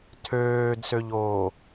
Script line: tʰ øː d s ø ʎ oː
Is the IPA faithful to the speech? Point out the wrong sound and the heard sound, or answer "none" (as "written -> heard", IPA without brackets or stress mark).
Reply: none